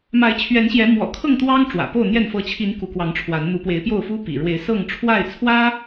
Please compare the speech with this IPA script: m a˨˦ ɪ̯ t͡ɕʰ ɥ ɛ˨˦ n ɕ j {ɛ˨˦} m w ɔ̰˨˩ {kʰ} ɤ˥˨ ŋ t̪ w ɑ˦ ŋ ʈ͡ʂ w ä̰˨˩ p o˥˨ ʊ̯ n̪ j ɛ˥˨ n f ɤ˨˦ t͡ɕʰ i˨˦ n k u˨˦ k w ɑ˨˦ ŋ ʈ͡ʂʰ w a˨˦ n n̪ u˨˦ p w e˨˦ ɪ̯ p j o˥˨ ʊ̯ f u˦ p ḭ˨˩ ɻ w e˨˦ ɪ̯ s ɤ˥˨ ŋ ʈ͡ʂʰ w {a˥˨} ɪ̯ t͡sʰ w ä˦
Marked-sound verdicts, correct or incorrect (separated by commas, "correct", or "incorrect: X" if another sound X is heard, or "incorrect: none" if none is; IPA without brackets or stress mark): correct, correct, correct